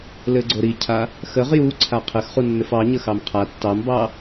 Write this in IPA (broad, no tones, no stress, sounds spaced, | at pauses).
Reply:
l ɘ ɡ͡ǀ o ɾ i cʰ a | x ə ʁ j u ǀʰ a qʰ ɘ x χ u nː ɘ f ɑ ɲ ə x ɑ m qʰ a tː ɑ m b ɑ